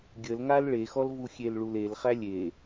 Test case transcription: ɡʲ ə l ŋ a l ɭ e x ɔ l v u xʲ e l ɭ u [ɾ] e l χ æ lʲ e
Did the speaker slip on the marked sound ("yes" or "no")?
yes